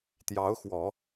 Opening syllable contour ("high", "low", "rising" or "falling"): rising